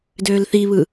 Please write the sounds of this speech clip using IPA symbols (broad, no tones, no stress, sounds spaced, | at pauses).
d øː l θ i β ɯ